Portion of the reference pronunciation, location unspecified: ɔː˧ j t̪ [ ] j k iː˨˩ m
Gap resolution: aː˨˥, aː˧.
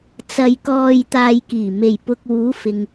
aː˧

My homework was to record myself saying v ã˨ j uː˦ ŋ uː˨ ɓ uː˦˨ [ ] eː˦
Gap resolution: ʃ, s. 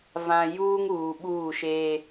ʃ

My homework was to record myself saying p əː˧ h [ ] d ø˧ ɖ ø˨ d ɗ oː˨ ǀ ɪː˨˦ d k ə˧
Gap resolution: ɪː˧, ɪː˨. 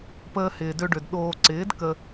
ɪː˨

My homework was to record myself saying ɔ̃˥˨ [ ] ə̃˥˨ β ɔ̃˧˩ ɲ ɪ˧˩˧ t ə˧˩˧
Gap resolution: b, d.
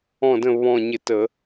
d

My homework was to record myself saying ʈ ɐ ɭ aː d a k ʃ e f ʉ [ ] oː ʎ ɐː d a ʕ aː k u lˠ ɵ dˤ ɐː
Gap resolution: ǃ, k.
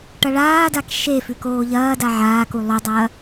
k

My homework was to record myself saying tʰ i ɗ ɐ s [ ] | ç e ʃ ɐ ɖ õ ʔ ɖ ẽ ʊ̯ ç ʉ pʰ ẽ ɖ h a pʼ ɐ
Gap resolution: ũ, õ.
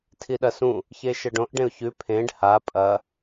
ũ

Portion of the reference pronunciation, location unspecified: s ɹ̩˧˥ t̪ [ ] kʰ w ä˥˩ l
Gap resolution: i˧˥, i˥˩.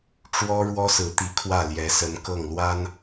i˧˥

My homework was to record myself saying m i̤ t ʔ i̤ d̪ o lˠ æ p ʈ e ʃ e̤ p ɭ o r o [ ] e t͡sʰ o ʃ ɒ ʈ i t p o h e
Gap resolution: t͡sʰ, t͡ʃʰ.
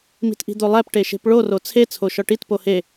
t͡sʰ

